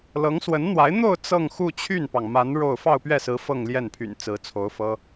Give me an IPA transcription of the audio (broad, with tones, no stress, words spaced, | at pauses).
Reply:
lɤ˧˥ŋswə˧˥nn̪wa˧˥ɪ̯ n̪o˥˧ʊ̯ t͡sɤ˥˧ŋ xu˥˧ t͡ɕʰy˥˩npɑ˩ŋ ma˧˥n ɻo˥˧ʊ̯ fɑ˥˧ʊ̯pɥɛ˥˩sɹ̩˧˥ fɤ˥˧ŋljɛ˥˩npʰy̰˨˩n t͡sɹ̩˧˥t͡sʰo˧˥ʊ̯fɤ˥